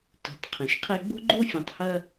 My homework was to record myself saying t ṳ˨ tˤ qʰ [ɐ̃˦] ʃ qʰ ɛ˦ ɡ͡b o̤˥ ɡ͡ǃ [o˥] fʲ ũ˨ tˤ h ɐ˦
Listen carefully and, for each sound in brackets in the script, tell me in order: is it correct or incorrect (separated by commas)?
incorrect, correct